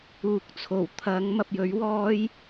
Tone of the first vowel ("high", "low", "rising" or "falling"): rising